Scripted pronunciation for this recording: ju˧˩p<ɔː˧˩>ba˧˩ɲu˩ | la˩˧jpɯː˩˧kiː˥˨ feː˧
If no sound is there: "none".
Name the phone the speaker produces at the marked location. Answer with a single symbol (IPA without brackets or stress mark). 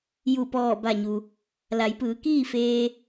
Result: ɔː˧˩